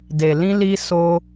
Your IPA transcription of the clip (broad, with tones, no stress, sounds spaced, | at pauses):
d e˨ l ĩ˧ l i˧ s o˧